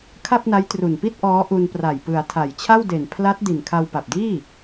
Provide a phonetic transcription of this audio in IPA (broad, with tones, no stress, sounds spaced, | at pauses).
kʰ a˥˩ p̚ n a˦˥ j t r u˨˩ n p i˥˩ t̚ ʔ ɔː˦˥ ʔ u˧ n p r a˨˩ j p ɯ˩˦ a̯ tʰ a˨˩ j t͡ɕʰ a˥˩ w d e˨˩ n pʰ l a˦˥ t̚ d i˨˩ n kʰ a˧ w p a˨˩ p̚ d iː˥˩